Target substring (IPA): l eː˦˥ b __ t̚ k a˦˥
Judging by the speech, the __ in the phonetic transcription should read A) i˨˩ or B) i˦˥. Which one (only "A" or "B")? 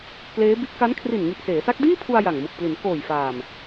B